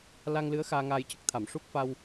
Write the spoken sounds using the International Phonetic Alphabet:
l a˧ ŋ l ɨ˧˥ ə̯ x aː˧ ŋ aː˧ j c ə˦˥ k̚ t̪ʰ a˨˩˨ m ʂ u˦˥ k̚ f a˧ w

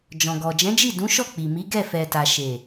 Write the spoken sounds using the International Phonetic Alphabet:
d͡ʒ ɔ̃˨ ɡ ɔ˨ d͡ʒ ɛ̃˨˦ d͡ʒ i˦˨ d ũ˨˦ ʃ ɔ˦˨ k͡p i˨ m i˨˦ ɡ ɛ˦˨ f ɛ˨ t a˨ ʃ e˨

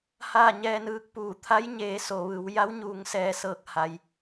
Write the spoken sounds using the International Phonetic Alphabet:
h aː˥˨ ɲ ɛː˧ n ɯː˧ k̚ p uː˧˩ t̪ʰ a˧˥ j ɲ eː˩˧ s o˩ ʋ ɯː˩˧ w j a˧˥ w ɲ uː˩˧ ŋ s ɛː˩ s ɤː˧˩ k̚ h a˩ j

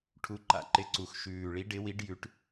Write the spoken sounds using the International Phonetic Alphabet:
ʈʰ u˨˦ ǃ a̰˨˩ ǃ ɪ˨˦ ǀ u˨˩ x ʃ ʉː˨˩ ɭ i˨˦ ɖ ɪ˨˦ w i˨˦ ɖ j ʉ˨˦ ʈ

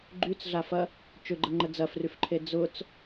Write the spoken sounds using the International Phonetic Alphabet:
ɡ͡ǃ y t͡s ɮ a f ɐ | t͡ʃ ʏ ɡ͡ǃ ə ŋ͡ǃ ə d͡z ɐ f r y f ǃʰ e d͡z ʊ t͡s

